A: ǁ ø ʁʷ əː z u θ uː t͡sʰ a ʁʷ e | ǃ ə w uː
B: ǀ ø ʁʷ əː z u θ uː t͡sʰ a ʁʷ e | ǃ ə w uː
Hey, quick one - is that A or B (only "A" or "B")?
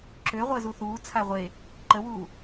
A